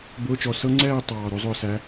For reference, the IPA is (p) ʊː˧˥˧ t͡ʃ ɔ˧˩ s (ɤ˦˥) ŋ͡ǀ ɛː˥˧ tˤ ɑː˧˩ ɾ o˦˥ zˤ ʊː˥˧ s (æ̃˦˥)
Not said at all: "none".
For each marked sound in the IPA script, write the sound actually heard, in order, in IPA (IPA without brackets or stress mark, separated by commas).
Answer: b, ɤ˦˥, æ˦˥